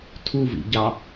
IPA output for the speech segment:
tʰ u v ḭ ɟ ɑ

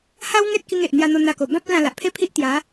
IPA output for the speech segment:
h a˦ w ŋ e˦ t̚ k i˧ ŋ e˨ ʔ n̪ j a˧ n̪ o˧ n̪ a˧ k o˨˩ b ã˦ p̚ ə˦ l ã˧ l a˨ ʔ pʰ e˥˧ pʰ i˦ ʔ t̪ j a˨˦

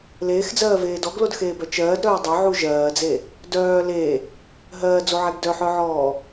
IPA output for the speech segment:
l eː x d͡z ɜː v eː d ɔ ɡ l o d x eː b œ t͡ʃ ɜː d ɾ œː dˤ œ ʕ u ʒ ɜː d͡z e | d œː l e | ɦ ɜː d͡z o ʕ ɛ ɡ d œ ħ œ ʕ ɔː

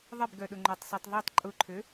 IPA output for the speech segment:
ðˤ ɪ b ɡ œ ɗ ʊ ŋ͡ǃ o tˤ sˤ i tˤ ðˤ o tˤ ǃʼ ʊ ǃʰ ø

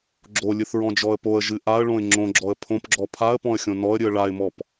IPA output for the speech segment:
ɡ͡ǁ o lʲ ɨ θ ɹ ɔ̃ d͡ʒ ɔ ə̯ p o ə̯ ʒ ɨ ʔ a ə̯ ɭ õ ɪ̯ ŋ͡ǁ õ ɡ͡ǁ ɔ ə̯ pʰ õ p ɡ͡ǁ ɔ pʰ a ə̯ p ɔ̃ ə̯ xʲ õ n ɔ ə̯ ɾʲ ɨ ə̯ ɭ a ɪ̯ m ɔ p

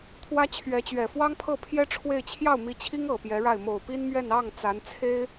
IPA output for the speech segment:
t̪ʰ w ä˥ t͡ɕʰ ɥ ɛ˧˥ t͡ɕ ɥ ɛ˨˩ f w ɑ˥ ŋ pʰ ɤ˥˩ pʰ j ɛ˥ ʈ͡ʂʰ w e˥˧ ɪ̯ t͡ɕʰ j ɑ˥˩ ʊ̯ m i˧˥ t͡ɕʰ i˥ ŋ ɤ˨˩ p j ɛ˧˥ ɻ a˥˩ ɪ̯ m o˨˩ ʊ̯ p i˥ n m ɥ ɛ˥˧ n ɑ˥˩ ŋ t͡s a˧˥ n t͡sʰ e˥ ɪ̯

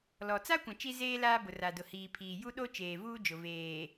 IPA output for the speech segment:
l ɔ˨ t͡s a˦ kʷ ã˨ t͡ʃ i˦ z eː˦ l aː˦ b ʊ˨ r a˨ d ʊ˨ h iː˨ pʰ iː˨ j u˦ ɗ o˦ t͡ʃ eː˨ v uː˦ d͡ʒ ʊ˨ v eː˨

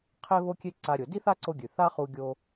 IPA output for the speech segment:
qʰ e˥ β o˥ kʲ e˥ ǀ a˧ ɾʲ o˩ d i˥ θ a˥ ǀ o˧ ɡʲ ʉ˩ θ a˥ χ u˧ ɡʲ o˧

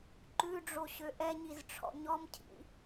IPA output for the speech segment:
ǃ ʉ ɖ͡ʐ o ɕ ø ʔ ɛ ɲ i z ʈ͡ʂʰ ɔ̰ ɲ ɔ m cʰ ḭ

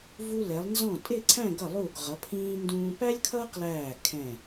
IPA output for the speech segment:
v u˧ l ɛ˩˧ lˠ n z ɔ̃˧˩ tʼ ɪ˥˧ ǀʰ æ̃˥˧ ɡ ʌ˧˩ lˠ u˧˩ ɡ ʁ ʌ˩˧ pʰ ĩː˧ n d ũː˧ p æ˥ lʲ kʰ ʌː˥ q l æː˧˩ kʰ ɛ̃˧˩

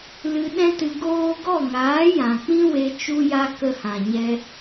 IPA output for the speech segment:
l ɨ˧ ɗ ɛ̃˦ t ɨ˧ ɡ oː˦ ɡ ɔ˦˨ ŋ aː˨˦ j ã˨ k͡p ĩ˦ w e˦ t͡ʃ u˦ j a˦ k ə˧ h ã˨ ɲ ɛ˧

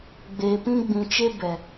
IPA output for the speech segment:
ɡ͡b e˨ p ĩ˧ ɡ͡b ĩ˨ t͡ʃ e˧ b ɛ˨

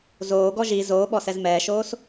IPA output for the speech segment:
z oː ɡ ɔ ʒ i z oː ɓ ɔ s ɛ z m ɛː ʃ oː s

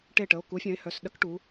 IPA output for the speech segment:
ʈ e˥˨ ʈ ə˩˧˩ o̯ k u˨˥ fʲ œ̃˨˥ e̯ h œ˩˧˩ s ɗ ə˦˥ k ʈ u˩˧

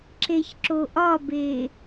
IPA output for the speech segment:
ǁ e ç ǁ o ʔ ɒ b e

